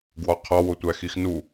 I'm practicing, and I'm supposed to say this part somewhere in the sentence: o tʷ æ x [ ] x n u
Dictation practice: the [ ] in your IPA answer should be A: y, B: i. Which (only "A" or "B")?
B